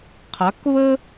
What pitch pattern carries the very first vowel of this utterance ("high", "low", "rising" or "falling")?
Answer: rising